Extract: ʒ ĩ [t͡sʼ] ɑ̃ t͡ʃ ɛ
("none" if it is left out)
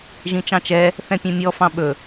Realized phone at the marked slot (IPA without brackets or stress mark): t͡ʃ